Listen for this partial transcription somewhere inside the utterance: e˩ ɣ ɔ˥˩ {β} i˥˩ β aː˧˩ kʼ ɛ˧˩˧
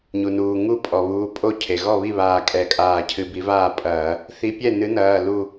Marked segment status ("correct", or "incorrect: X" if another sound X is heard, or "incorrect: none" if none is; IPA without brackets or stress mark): correct